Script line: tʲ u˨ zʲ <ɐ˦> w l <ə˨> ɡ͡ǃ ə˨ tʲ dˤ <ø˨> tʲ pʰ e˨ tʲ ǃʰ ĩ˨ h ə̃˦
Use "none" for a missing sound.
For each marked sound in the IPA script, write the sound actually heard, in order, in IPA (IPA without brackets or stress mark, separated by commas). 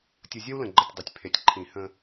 ɐ˦, ə̃˨, ø˨